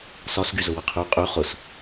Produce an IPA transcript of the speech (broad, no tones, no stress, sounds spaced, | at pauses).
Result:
s ɒ s ɡ y z ʊ w ə qʰ y qʼ y χ ʊ s